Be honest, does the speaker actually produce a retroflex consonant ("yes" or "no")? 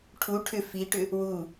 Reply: yes